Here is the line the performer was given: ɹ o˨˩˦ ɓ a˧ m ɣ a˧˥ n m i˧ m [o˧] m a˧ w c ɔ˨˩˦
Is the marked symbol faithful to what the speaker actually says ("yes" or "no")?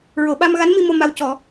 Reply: yes